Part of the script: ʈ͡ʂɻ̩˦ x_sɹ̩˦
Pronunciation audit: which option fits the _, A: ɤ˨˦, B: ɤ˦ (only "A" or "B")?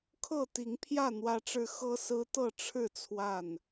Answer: B